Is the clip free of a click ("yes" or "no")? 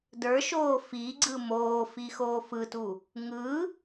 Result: no